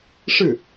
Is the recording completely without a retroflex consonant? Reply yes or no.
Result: no